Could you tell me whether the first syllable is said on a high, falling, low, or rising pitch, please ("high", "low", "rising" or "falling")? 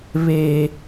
high